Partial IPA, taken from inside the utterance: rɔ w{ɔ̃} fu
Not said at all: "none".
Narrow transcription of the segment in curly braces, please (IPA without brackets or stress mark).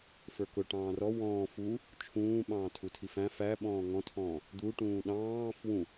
ɔ̃ː